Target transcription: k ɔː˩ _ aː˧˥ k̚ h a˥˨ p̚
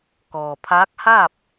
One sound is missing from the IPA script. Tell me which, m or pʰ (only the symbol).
pʰ